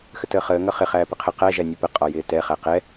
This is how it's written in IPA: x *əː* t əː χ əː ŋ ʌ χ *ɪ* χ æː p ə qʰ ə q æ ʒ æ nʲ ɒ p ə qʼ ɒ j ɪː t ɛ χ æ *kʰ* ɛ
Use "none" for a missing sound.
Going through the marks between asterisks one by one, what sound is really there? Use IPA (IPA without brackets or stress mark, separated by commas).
ə, ɪ, q